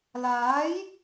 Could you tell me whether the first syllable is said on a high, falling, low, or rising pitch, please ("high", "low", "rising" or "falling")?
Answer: rising